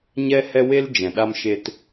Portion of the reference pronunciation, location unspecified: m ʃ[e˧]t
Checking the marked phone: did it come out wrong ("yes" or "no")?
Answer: no